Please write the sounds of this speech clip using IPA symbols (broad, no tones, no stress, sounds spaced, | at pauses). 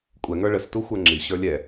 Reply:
kʷʼ ɛ ŋ ə˞ ɭ ə s t u xʷ ə˞ ŋ͡ǁ i ɕ ə˞ lʲ ɛ